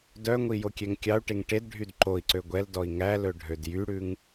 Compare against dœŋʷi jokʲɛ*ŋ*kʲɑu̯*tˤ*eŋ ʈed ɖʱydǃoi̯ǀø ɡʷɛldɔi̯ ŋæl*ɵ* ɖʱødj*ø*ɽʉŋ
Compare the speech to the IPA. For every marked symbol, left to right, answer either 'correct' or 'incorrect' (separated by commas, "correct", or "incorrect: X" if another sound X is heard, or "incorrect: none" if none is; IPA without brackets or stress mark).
correct, incorrect: ʈ, correct, incorrect: y